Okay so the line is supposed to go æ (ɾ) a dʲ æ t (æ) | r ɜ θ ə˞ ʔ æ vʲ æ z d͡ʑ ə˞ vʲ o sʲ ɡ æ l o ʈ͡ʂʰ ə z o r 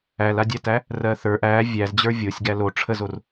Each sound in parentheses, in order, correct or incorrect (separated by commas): incorrect, correct